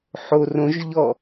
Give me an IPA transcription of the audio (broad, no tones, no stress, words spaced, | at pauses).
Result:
ħorõʒʎɔ